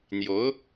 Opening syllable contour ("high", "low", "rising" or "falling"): rising